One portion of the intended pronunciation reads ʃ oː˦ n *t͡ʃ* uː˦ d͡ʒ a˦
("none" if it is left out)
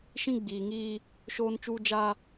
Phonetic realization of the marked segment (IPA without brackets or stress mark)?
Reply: t͡ʃ